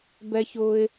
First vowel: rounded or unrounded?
unrounded